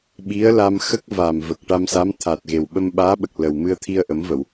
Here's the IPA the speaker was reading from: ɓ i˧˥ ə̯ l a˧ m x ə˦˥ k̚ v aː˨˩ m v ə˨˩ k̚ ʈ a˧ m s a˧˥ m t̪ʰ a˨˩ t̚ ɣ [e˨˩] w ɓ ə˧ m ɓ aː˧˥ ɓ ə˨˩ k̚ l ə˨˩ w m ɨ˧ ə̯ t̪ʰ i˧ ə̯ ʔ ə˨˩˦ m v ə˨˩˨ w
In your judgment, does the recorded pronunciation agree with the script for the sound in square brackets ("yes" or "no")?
yes